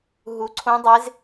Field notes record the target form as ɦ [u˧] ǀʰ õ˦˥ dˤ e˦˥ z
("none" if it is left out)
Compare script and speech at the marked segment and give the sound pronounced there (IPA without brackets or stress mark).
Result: u˧